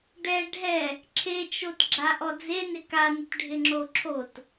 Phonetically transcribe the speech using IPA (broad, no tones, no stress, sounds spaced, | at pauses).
ɖ ɛ ɖʱ ɛ | ǁʰ e t͡ʃ o t ɡ͡ǁ a ʔ ɔ d͡z e n ɪ k a n ɪ t ɖʱ ɪ ŋ͡ǁ o ǁʰ o t